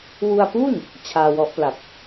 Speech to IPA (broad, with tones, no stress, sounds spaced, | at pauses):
w u˧ a̯ p uː˥˩ n | t͡ɕʰ aː˧ w ɔ˦˥ ʔ p l a˨˩ p̚